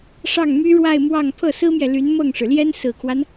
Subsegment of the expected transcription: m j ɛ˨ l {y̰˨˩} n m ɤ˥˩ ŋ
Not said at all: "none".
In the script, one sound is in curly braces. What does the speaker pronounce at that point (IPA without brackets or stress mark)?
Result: y˧˥